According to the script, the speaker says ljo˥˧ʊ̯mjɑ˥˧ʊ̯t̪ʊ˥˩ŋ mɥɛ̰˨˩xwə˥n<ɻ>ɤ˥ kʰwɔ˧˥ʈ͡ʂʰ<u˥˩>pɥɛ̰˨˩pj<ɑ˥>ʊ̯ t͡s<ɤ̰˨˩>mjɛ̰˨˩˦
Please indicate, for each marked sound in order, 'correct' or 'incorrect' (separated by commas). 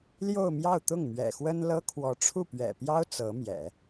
incorrect, correct, correct, incorrect